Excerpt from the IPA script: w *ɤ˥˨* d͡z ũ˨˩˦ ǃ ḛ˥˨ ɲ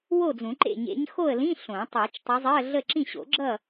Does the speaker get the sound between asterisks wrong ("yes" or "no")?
yes